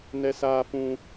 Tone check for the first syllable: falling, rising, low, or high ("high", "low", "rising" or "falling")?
high